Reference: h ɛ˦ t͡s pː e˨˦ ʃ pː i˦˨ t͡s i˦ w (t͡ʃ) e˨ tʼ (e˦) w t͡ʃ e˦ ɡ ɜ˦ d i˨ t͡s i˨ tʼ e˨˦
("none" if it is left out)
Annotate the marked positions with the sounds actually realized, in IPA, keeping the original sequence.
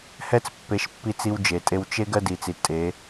d͡ʒ, e˦

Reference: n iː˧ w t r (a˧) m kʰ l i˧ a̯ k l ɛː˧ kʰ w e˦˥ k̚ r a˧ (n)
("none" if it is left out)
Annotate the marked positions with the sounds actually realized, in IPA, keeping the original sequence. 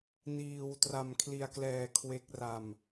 a˧, m

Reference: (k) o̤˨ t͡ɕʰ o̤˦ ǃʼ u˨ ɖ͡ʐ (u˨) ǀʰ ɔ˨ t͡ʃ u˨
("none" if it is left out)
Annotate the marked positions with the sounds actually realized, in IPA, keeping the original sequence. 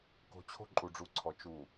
k, u˨

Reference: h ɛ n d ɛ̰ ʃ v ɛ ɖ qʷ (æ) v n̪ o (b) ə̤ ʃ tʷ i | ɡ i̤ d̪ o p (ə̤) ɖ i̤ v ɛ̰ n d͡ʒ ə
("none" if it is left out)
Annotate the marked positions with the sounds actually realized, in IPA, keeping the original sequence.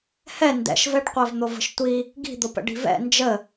æ, v, ə̰

